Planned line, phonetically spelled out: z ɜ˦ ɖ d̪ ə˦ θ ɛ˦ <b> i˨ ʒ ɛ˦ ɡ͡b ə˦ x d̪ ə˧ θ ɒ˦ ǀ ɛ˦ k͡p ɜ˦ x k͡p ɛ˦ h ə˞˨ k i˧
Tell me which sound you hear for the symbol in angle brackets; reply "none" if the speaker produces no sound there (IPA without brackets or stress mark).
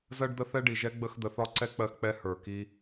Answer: ɖ